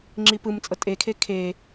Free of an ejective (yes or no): no